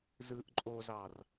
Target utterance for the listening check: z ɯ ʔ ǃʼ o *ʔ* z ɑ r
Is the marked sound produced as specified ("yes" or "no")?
no